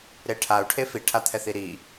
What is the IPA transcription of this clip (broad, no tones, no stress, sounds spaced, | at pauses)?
ɾ e ʈʰ a u̯ ʈʰ e f i ʈʰ a t̪ʰ ɛ θ i ɾ i